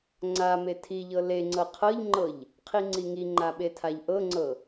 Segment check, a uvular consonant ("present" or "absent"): present